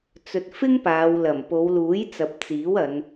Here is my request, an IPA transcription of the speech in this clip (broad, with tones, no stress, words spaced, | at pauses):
t͡sɵ˨t̚fɪ˥ŋ paː˨˧wlɐ˨˩m po˨˧wluː˨˥jt͡sɐ˨p̚ t͡siː˨˥w ɐ˨˧n